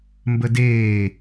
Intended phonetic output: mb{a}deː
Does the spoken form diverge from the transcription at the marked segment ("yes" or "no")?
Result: yes